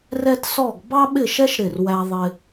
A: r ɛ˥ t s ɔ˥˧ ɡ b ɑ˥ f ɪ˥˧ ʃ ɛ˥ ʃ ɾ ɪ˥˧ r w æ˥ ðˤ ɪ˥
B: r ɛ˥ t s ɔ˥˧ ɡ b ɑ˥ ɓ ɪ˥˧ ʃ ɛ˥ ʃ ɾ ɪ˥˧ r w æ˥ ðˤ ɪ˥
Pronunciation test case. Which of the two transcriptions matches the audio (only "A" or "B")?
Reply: B